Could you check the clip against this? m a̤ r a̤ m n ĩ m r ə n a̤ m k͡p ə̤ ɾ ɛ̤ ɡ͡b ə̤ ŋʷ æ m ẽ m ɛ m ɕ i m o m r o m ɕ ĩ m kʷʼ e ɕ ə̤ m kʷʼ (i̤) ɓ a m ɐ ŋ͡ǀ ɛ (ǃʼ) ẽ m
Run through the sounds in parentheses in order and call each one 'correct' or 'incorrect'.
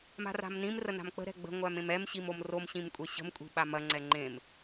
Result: correct, incorrect: ŋ͡ǃ

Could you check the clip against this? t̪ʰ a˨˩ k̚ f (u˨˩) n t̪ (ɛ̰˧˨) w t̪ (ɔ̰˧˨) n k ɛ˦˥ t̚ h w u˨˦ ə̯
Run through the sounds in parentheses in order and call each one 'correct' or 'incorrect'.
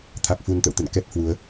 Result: correct, incorrect: ə̰˧˨, incorrect: ə̰˧˨

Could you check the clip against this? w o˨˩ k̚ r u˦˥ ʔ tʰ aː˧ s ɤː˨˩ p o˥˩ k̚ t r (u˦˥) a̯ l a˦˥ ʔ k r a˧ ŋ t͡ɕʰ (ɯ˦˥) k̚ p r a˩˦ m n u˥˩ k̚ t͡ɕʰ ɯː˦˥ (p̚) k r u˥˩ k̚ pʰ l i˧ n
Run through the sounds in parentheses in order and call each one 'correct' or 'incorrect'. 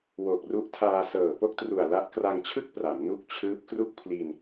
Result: incorrect: u˨˩, incorrect: ɯ˥˩, correct

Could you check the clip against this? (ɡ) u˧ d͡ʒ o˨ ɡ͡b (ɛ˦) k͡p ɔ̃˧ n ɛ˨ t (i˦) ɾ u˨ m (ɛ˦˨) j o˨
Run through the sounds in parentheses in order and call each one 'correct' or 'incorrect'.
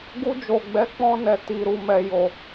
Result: correct, incorrect: ɛ˨˦, incorrect: i˨, incorrect: ɛ˨

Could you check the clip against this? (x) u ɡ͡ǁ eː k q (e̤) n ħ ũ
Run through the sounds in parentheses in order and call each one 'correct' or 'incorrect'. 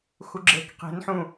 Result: correct, correct

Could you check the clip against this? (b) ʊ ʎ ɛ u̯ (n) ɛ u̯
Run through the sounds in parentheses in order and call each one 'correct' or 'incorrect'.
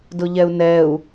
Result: incorrect: d, correct

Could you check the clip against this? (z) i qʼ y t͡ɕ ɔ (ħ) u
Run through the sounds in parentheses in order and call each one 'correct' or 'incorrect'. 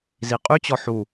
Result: correct, correct

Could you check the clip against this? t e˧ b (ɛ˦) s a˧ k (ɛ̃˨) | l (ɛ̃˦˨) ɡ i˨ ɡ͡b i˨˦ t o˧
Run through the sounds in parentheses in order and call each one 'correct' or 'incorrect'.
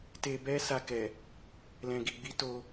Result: correct, incorrect: ɛ˨, incorrect: ɛ̃˨

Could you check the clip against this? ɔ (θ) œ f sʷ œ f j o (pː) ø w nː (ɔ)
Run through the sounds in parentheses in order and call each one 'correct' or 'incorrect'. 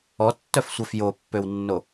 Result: incorrect: tː, correct, incorrect: o

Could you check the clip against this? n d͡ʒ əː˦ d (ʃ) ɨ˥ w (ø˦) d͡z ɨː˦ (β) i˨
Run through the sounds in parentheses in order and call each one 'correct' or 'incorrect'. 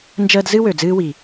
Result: incorrect: z, incorrect: ø˨, incorrect: w

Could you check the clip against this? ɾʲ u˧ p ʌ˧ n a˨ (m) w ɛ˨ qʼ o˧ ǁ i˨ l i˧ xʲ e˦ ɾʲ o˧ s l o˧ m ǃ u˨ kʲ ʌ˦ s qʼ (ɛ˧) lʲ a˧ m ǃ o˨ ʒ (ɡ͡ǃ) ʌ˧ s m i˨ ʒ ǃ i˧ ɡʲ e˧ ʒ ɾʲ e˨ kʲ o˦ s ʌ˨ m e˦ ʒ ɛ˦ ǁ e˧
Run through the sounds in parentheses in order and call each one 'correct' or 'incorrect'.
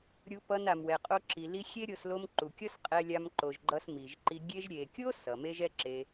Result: correct, correct, correct

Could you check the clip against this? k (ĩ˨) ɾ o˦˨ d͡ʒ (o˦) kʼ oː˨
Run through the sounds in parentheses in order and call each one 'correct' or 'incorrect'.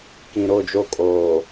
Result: correct, correct

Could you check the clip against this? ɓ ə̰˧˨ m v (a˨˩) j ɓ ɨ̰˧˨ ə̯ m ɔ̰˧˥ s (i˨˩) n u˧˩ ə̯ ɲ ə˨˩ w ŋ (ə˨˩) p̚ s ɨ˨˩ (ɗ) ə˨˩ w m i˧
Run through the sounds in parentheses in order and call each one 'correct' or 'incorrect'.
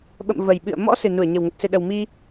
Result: incorrect: ə˨˩, incorrect: ɨ˨˩, correct, correct

